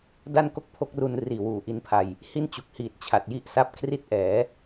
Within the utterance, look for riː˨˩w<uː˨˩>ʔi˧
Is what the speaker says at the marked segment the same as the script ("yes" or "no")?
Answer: yes